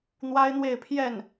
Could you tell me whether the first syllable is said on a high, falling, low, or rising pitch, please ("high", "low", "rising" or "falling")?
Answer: high